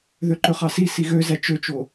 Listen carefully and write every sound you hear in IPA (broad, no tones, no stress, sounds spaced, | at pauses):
ð ø ǃ ø χ ɑ s i s i ɣ ø z æ t͡ʃ ø t͡ʃ o